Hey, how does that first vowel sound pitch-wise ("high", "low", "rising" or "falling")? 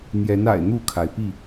rising